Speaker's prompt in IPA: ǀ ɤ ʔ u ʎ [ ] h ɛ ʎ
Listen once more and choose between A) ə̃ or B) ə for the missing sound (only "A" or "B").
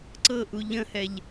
A